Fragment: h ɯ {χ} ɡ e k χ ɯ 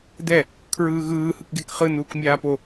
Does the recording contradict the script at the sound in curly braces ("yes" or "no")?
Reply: yes